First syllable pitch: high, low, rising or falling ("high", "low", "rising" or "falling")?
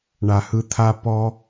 low